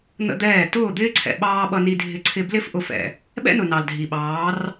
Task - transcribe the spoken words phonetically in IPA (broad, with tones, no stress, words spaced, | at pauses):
n̪ə̰˦d̪ɛː˦˨ tʊː˦˨d̪ɪː˦ǀʰɛ̰˨ ɓɑː˦ɓʌ˧ni˧dʱɪ˧ ǀʰɪ˧ blɪ˦f ʔʊ˨˦fɛ̰˨ | ɓɛ̰˦nʊ˨ nɑ˨l dʱi˨ɓɑː˨˦r